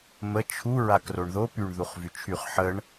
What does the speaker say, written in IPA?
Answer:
mə t͡ʃʰu ɹakroɳðo pyɳ ðuχvyt͡ʃʰyχ ħəɳ

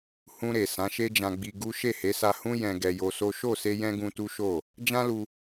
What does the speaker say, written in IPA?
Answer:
hũ˧ɾe˨ sã˨˦ʃe˦d͡ʒã˧ɡ͡bi˧ ɡu˦ ʃe˦˨he˨˦sa˧ hũ˦ jɛ̃˧ ɡɛ˧jo˧so˦ ʃo˦˨se˧ jɛ̃˦ɡũ˧tu˦ ʃo˦˨ | d͡ʒã˦lu˧

